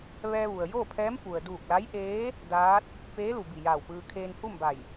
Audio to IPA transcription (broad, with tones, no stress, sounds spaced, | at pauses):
ʋ ɛː˧ ʋ u˩ ə̯ j oː˥˨ pʰ ɛː˧˥ m p u˩ ə̯ d uː˧˩ k̚ l a˧˥ j ʔ eː˧˥ | d aː˧˥ t̚ | p eː˧˥ l u˩ b i˧˩ j aː˧˩ w p ɯː˧ kʰ eː˧ n h u˥˨ m b a˧˩ j